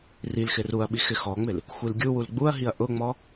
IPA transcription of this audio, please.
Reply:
r i l x ɪ r u ɐ̯ ɓ i x ɪ x ɔ ŋ͡m ɪ l | xʷ i l ɡʲ u w u l ɡ͡b u ɐ̯ ɦ i ɐ̯ ʔ ʊ ŋ͡m ɔ

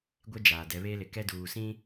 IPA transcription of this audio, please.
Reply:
ɡʷ e˦ d͡ʒ aː˨ d ɛ˨˦ β eː˦ l ɪ˨ k ɛ˦ d uː˨ s ĩ˦

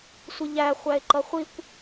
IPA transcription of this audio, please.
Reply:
sʷ ɪ ʎ æ χʷ æ e̯ ǃ ʌ χʷ i kʷ

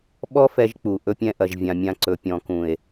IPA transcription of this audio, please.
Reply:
ɓ ɔ˦ f ɛ˧ ʒ k͡p u˨ ʔ ɵ˧ pʲ ɛ̃˧ ʔ ɐ˨ ʒ vʲ ã˨ mʲ ã˧ ǀ ɵ˨ pʲ ɔ̃˨ k ũ˨ e̯

